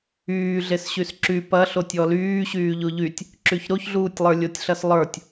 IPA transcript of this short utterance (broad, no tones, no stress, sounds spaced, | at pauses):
yː ɮ e s ɕ y s ǁ y p ɐ ɬ o tʲ ɔ l yː ɕ yː ʎ o ʎ y tʲ | ǁ y ç ɾ o ç ɮ uː tʲ lˠ ə˞ lʲ o tʲ ɬ ɐ s lˠ ə˞ tʲ